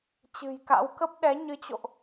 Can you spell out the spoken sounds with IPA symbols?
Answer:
t͡ɕɨ̤˨˩jka̰˧˥w kə˦˥p̚ɗɛ˨˦ ɲɨ˨˦t͡ɕo̰˧˨ʔ

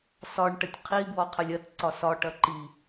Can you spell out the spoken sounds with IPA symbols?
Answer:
sɒɳ ʈɐtʲqʰi bwɔqʰɐlʲɐt ǀɒsɒʈ ɐǃi

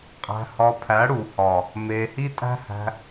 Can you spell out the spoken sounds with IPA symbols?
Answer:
qʼæ̤˧hɒ˧pʰæ˨˦ ɽu˨hɒ˨ | me˧ hi˦tʼæ̤˦hæ̤˧

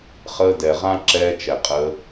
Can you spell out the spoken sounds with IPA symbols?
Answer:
χəː˧dɛ˨ʁã˦ ǁɛː˧t͡ʃɛ˨qʼə˧

